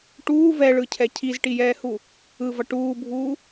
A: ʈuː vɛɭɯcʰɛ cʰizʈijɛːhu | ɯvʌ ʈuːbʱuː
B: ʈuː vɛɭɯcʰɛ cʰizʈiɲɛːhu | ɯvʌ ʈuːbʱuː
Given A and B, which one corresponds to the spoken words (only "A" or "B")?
A